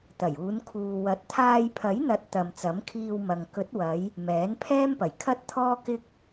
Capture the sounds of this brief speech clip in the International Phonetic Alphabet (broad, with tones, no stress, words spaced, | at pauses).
t̪ɐ˨˩juː˨˧n kʰuː˨wɐ˨˥t̚ t̪ʰaː˧j pʰɐ˨˥jn̪ɐ˨˥t̚ t̪ɐ˨m t͡sɐ˨˥mkʰiː˧w mɐ˨ŋ kɵ˨˥t̚wɐ˨˧j | mɛː˨˥npʰɛː˥mpɐ˨˩j kʰɐ˥t̚ t̪ʰɔː˥kɪ˥k̚